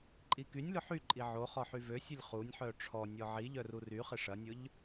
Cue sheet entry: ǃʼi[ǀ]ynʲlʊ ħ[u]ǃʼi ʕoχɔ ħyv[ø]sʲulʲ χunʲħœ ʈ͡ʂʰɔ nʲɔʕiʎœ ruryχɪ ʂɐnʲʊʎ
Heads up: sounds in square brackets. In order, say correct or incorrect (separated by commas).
incorrect, incorrect, correct